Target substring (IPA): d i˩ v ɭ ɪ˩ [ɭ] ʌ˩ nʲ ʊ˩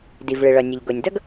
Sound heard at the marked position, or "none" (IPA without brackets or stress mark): ɭ